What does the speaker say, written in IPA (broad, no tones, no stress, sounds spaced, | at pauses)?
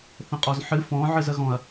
θ ə̃ qʼ ɔ z ħ ɨ f ɔ̃ ʕ ɨ z ə ɣ ɔ̃ ɐ̯